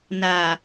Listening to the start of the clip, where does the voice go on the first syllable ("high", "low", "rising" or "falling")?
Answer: low